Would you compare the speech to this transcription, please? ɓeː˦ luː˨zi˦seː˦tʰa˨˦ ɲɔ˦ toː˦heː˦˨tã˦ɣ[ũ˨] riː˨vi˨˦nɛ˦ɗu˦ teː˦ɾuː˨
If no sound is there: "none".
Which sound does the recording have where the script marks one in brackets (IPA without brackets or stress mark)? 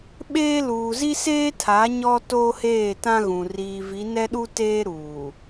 ũ˨